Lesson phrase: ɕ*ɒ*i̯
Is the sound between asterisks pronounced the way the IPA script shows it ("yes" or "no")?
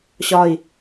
yes